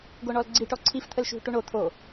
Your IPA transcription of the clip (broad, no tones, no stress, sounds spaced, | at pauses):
ɡ o ɳ ɔ l ɡ͡ǀ i ʈ ɔ ǀʰ i f t̪ʰ ə l ʃ ṳ ʈ u ɳ o t̪ʰ o